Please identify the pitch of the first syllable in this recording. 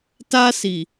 high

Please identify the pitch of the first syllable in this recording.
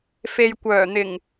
low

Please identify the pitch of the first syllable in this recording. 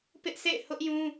high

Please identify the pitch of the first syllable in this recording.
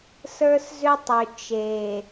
high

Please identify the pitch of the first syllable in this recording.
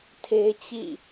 high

